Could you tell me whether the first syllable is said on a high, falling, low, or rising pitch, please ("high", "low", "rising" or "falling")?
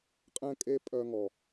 high